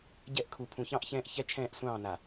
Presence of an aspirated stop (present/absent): present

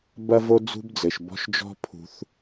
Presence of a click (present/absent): absent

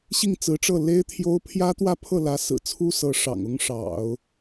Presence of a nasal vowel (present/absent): absent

